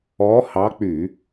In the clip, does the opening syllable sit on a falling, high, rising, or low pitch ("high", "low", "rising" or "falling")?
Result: rising